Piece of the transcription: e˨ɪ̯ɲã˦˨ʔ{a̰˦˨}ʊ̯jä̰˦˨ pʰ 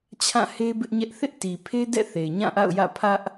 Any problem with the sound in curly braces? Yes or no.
no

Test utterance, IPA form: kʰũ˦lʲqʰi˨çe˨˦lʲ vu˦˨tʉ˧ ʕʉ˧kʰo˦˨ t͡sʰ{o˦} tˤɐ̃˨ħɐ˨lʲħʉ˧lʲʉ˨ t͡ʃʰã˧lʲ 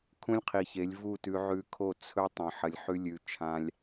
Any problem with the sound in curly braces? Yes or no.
yes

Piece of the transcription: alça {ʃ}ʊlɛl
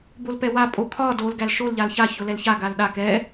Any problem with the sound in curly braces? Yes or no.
yes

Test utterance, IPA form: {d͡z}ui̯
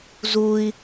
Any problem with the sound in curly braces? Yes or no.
yes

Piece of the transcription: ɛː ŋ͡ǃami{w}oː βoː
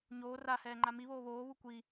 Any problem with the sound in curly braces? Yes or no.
yes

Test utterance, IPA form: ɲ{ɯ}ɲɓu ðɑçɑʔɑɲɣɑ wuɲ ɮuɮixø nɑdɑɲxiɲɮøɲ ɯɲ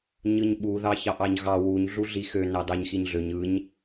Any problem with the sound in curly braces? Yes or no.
no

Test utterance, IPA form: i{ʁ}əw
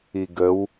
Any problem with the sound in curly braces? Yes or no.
yes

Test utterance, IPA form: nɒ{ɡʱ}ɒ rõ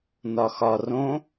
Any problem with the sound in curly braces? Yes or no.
yes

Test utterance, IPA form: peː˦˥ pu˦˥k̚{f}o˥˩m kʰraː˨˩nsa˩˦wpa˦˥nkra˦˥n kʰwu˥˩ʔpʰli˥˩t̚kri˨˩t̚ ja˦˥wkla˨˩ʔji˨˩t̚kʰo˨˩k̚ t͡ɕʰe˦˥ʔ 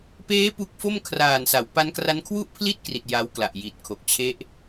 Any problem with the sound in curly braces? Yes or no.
no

